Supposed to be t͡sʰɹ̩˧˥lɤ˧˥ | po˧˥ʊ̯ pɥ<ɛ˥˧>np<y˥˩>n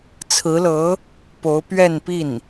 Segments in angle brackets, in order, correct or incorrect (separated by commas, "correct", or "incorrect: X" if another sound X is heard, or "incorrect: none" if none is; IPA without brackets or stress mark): correct, incorrect: i˥˩